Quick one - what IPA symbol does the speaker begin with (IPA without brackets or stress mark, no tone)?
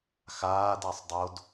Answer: x